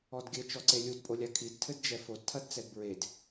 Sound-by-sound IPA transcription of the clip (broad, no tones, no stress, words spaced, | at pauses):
ɔdɡʲɘ t͡ʃɔǀelʲud pʼolʲakʰid tʰɘdd͡ʒɛfod tʰɐdt͡sɛdbɹed